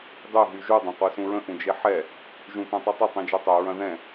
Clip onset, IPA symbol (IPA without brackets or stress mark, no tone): dˤ